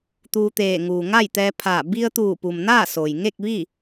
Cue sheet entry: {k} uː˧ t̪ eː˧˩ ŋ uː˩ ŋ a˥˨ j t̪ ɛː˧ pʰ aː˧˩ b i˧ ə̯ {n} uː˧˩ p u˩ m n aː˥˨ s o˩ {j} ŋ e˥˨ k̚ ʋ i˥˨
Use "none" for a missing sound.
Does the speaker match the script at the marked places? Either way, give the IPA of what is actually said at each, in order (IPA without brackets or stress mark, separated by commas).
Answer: t̪, t̪, j